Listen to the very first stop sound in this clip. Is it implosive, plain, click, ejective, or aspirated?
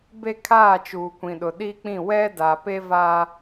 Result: plain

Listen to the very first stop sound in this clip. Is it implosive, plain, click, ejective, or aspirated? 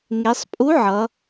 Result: ejective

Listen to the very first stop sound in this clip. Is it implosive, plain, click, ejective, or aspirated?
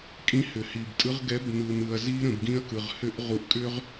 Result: ejective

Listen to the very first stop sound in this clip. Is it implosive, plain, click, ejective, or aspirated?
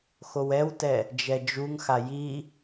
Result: plain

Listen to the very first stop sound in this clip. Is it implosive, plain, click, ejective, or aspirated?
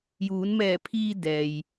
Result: aspirated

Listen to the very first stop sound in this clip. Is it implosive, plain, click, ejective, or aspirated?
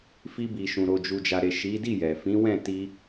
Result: plain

